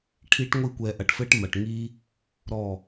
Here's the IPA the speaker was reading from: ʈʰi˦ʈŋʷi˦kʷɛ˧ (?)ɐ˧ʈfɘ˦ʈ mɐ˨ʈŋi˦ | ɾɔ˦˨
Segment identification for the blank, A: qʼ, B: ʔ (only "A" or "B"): B